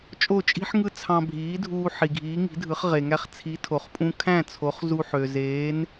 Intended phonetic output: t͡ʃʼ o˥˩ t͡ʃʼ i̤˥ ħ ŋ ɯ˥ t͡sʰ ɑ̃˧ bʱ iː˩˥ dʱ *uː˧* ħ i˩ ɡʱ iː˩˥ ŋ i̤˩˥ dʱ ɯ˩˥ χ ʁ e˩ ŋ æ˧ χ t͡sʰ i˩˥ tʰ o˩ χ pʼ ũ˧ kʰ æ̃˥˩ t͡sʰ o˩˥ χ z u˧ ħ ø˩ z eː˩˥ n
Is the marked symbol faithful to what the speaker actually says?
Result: yes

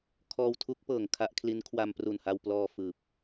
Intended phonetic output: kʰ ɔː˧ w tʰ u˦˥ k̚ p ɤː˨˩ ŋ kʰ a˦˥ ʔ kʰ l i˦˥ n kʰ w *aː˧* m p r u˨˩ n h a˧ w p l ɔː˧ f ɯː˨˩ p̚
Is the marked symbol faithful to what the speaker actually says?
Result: no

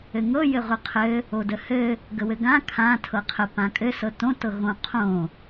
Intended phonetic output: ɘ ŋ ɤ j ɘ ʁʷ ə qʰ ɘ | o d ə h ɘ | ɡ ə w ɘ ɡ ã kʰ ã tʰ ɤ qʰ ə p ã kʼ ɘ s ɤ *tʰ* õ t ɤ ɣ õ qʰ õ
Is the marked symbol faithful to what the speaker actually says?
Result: no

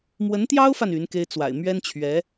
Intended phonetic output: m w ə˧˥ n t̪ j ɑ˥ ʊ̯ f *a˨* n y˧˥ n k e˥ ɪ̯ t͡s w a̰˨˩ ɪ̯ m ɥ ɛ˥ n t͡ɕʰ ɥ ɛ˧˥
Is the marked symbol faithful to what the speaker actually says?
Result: yes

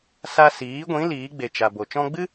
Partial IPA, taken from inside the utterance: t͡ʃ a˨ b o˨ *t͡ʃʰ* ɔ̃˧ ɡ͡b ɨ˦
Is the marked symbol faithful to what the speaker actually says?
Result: no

